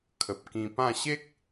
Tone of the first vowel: low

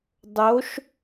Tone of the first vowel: rising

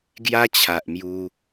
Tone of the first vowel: high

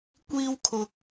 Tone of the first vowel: high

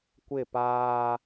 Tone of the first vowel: falling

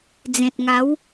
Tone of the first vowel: low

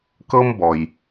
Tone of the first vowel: high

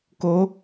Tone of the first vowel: rising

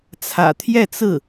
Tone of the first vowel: low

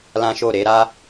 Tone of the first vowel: high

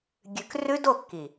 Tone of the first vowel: low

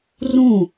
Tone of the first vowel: falling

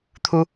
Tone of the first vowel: high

